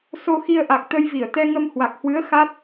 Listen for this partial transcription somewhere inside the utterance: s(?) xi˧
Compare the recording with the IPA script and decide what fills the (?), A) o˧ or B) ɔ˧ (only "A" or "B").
A